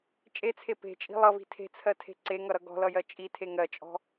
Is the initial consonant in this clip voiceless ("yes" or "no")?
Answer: yes